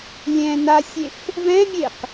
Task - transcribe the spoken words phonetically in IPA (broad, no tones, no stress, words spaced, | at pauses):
lʲɛ̃ nasʲef | vɛ̃mʲeq